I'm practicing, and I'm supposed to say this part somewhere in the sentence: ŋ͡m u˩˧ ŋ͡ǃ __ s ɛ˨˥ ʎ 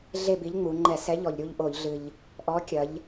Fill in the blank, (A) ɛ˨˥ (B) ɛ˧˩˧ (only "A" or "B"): B